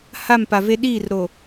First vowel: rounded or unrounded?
unrounded